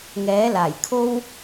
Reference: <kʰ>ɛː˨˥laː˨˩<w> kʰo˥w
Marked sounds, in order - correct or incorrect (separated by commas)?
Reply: incorrect, incorrect